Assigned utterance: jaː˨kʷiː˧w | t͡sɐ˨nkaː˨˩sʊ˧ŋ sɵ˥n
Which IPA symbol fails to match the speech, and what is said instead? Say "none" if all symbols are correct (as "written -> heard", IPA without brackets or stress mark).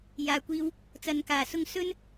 none